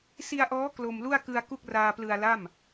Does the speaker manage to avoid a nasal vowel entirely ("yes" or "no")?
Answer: yes